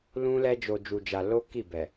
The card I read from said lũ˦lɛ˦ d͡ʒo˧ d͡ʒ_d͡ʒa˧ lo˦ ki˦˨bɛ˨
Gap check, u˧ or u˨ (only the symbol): u˧